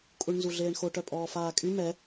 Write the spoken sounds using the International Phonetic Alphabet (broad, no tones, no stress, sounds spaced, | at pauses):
kʼ u ɳ n z u ɮ eː ɳ x o ʈ œ pʼ ɔː f aː kʼ y m ɛ